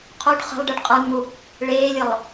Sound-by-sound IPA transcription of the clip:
qʰuɖ χə̤lˠɖɨɖ qʼə˞nmu | ɭeːlʲəlˠ

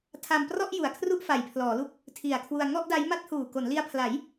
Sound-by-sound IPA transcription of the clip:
tʰa˧mprɔ˥˩ʔ ju˨˩a̯kʰru˥˩ʔ fa˨˩jpʰlɔː˩˦lu˦˥k̚ | tʰi˨˩a̯kʰwu˧a̯ ŋɔ˥˩ʔda˦˥jma˥˩t̚ huː˨˩ko˩˦nli˧a̯pʰla˩˦j

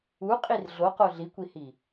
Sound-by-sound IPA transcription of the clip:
u qʼirɮoqo ɮikʷihi

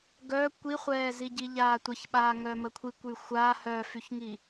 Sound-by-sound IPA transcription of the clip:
ɡœ kʷiχʷɛːzi ɟiʎaːtʷəçɓaː ŋœməkʷʰikʷ yxʷa hœfyçŋi

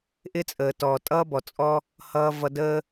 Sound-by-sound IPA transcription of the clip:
ʔɪ˦t͡sʼəː˨tɔː˨tʼʌː˦ bɔ˨t͡sʼɔ˦ | hʌː˧ vʌ˧dəː˦

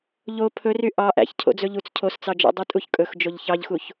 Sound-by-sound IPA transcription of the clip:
ʎo pʰɵry ʔɑ ʔæ̰ç cʰo̰d͡zɵʎut͡s cʰost͡sɑd͡ʒɔ̰ dˤytʼuçkʼɵx d͡ʒoʎçɑʎxuç

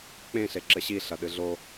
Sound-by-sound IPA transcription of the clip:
k͡pẽ ɬeǁɘɕi ɬɐɗɨɮo

